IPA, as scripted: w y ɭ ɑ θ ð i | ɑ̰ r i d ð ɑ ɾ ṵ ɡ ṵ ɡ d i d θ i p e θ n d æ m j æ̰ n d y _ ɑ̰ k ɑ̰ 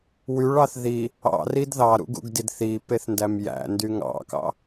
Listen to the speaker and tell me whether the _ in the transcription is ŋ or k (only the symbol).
ŋ